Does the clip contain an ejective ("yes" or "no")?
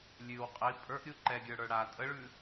yes